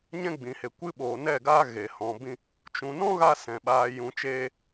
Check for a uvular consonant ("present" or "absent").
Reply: absent